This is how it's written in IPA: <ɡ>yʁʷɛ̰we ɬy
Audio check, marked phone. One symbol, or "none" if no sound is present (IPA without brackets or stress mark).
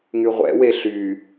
ŋ